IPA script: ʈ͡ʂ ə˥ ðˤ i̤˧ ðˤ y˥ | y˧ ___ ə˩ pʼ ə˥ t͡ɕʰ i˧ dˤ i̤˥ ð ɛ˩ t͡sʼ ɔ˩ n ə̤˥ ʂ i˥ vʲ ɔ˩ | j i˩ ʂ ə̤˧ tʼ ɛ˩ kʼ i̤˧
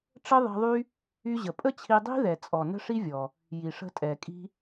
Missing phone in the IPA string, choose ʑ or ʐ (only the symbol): ʑ